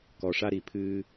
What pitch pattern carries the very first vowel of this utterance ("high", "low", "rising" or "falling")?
low